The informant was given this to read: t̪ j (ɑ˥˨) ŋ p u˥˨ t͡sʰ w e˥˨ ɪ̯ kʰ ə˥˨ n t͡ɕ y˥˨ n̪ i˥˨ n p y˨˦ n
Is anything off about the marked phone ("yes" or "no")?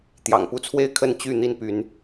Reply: yes